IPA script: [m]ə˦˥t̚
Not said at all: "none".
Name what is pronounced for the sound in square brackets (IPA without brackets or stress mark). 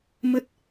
m